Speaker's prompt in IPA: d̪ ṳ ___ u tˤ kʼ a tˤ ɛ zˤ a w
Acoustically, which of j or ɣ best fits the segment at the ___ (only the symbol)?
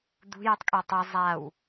j